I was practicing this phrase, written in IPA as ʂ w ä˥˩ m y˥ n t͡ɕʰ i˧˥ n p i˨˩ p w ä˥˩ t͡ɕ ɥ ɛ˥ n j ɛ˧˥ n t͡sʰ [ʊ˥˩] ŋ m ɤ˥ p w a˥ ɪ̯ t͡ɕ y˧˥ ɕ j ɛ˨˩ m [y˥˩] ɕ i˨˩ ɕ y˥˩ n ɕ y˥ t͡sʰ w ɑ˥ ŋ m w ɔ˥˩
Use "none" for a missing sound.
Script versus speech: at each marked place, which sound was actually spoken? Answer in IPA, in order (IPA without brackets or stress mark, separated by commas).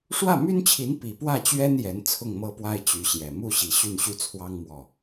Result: ʊ˥˩, u˥˩